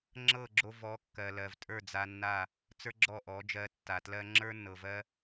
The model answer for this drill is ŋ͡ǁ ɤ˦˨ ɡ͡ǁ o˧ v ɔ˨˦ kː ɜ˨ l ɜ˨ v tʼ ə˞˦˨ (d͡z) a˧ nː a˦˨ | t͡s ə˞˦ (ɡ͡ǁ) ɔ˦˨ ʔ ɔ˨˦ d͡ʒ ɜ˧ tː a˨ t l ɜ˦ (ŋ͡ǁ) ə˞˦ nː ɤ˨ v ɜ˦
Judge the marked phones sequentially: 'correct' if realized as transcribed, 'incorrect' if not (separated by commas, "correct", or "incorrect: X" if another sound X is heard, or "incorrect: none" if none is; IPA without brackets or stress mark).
correct, correct, correct